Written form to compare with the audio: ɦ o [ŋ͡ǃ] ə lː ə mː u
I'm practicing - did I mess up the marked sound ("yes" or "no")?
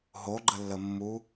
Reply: yes